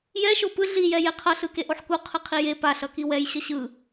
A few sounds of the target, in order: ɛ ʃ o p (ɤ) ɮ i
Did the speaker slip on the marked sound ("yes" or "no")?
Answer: yes